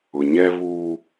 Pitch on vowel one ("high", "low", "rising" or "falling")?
low